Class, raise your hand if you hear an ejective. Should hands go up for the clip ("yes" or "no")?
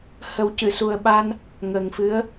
no